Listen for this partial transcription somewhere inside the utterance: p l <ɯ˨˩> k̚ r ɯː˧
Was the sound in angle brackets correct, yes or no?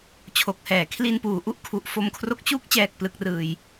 no